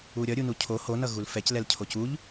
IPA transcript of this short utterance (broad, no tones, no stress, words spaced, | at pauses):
uɾʲʌ ɾʲunucʰo honʌ ɣulfɛclɛl cʰocuʎ